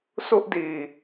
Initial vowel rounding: rounded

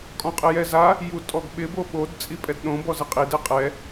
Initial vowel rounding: rounded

